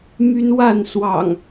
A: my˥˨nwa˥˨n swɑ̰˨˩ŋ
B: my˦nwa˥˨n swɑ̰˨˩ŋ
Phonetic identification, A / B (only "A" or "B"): B